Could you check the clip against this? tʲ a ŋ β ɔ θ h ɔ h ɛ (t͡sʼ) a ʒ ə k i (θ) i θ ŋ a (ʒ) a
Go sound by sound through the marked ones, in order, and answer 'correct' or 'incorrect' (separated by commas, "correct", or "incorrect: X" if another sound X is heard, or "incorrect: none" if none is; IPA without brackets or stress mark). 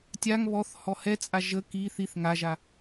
correct, correct, correct